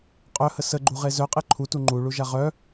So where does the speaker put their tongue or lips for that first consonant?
uvula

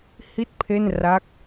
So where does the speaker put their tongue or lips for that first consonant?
throat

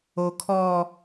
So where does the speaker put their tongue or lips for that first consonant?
velum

